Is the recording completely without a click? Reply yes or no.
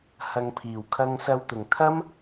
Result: yes